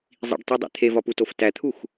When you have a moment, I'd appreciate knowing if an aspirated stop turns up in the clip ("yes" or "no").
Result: yes